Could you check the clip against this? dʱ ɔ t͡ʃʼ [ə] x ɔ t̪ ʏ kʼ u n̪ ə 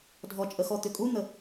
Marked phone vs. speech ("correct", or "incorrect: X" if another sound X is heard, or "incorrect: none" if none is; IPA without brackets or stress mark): correct